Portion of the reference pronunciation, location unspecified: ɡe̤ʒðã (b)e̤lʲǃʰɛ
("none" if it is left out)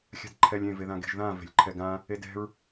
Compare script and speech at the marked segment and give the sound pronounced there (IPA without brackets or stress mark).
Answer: v